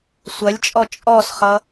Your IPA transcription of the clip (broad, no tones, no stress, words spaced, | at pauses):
sʷɐlʲt͡ʃʼɔ t͡ʃʼɔsχʌ